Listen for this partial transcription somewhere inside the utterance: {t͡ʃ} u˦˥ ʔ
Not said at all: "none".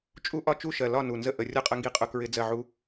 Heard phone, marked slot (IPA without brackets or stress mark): t͡ʃʼ